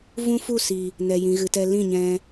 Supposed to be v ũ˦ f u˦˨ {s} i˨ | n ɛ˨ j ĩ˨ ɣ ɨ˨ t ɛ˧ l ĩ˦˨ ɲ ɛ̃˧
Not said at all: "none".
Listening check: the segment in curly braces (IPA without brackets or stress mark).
s